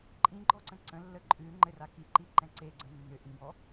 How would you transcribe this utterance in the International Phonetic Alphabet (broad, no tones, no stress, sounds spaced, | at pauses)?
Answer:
ǃʼ ĩ ɡ͡ǃ ɔ ǀ ə̃ ǀ ə̃ lː ə ǃʼ ʉ ŋ͡ǃ ɘ r a k i ǃ i ǃ ɛ̃ ǀ e ɡ͡ǀ ə̃ nː ʏ ʔ ĩ b ɔ